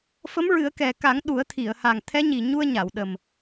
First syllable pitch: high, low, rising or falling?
rising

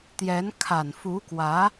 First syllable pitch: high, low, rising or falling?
rising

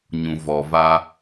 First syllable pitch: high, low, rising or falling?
low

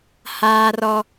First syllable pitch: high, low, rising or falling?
high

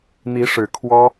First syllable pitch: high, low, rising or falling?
rising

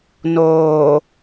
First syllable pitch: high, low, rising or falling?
low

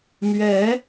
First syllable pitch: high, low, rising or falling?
rising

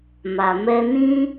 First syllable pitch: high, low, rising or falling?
low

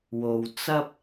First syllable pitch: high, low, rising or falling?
low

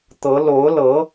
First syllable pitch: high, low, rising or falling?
rising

